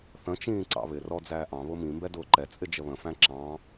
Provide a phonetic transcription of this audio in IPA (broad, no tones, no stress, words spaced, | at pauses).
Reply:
θə̃t͡ʃĩː ǀɑ̰βɪrɔ d͡zæːʔɑ̃βʊ mĩmbɛ dʊːǃɛt͡sʼɪ d͡ʒəβə̃fæ̃ ǁɑ̃